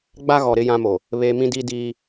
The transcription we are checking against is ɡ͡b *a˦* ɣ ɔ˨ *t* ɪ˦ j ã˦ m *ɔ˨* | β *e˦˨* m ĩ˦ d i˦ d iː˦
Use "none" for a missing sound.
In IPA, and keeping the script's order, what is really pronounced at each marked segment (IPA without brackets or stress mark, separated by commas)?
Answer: a˦, ɾ, o˨, e˨